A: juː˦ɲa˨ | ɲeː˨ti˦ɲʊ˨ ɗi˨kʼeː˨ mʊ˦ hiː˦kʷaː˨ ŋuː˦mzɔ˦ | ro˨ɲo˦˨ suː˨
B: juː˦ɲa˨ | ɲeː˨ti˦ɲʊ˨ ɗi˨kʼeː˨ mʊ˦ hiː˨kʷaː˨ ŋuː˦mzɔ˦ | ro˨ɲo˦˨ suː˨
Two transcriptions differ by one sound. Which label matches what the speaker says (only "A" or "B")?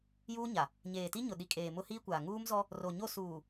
A